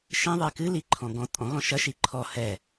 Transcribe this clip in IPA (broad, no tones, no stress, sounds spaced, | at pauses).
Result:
ʃ ĩ ðˤ i k ɨ l i ǃʰ ɔ̃ ɡ ɔ̃ tʼ ɔ̃ ɣ ɔ̃ ʃ ɐ ʃ i ǃʰ ɔ h ɛ